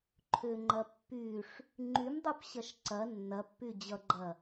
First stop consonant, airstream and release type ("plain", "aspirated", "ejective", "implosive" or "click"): click